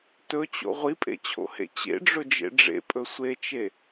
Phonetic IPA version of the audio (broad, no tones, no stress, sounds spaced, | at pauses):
t ɵ t͡ɕ o̰ ʁʷ i pʼ ḛ t͡ɕʰ o̰ h ḛ t͡ɕ ḛ ɖ͡ʐ ɵ d͡ʒ ḛ ɖ͡ʐ ḛ pʼ ɵ sʷ e t͡ʃ e